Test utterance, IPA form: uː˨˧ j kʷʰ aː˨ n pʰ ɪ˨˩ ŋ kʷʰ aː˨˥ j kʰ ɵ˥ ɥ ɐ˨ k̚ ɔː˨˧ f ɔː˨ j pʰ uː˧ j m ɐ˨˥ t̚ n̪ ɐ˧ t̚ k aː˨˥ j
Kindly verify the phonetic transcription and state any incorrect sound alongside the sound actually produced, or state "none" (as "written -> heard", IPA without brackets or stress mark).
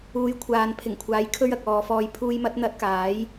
none